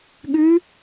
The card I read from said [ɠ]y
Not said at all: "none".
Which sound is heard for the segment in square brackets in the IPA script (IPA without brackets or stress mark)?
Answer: ɠ